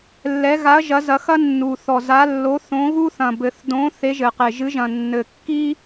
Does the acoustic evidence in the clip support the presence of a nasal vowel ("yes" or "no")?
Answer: yes